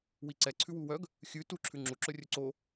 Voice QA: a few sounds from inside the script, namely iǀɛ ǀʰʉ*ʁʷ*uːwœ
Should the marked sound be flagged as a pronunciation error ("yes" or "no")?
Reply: yes